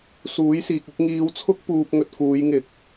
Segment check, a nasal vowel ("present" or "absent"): absent